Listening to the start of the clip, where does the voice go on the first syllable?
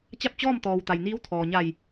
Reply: falling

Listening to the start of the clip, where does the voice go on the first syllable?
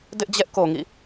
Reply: high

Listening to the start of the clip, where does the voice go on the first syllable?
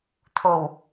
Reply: low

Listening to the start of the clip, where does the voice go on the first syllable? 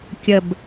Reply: low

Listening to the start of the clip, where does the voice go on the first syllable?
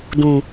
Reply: low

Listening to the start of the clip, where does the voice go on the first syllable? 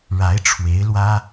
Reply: rising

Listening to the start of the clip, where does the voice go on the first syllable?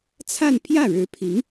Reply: falling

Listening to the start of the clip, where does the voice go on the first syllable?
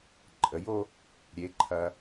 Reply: rising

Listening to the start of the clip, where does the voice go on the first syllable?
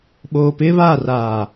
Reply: low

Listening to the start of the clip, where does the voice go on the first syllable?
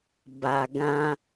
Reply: low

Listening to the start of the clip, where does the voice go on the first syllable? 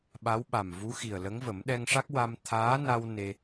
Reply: rising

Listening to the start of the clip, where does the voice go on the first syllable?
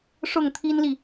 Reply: falling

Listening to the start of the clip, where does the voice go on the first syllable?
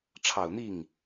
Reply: low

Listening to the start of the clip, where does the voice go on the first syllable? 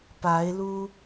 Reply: rising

